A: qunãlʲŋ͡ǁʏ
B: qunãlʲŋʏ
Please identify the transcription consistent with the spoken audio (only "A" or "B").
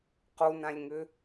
B